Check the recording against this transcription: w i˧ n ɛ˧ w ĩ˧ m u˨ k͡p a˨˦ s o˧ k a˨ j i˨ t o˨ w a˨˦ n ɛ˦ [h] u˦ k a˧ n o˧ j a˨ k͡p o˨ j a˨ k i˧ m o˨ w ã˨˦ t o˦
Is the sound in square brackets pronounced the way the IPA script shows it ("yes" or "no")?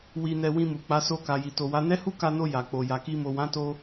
yes